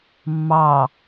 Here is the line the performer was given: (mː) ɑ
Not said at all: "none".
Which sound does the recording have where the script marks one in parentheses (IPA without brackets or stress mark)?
mː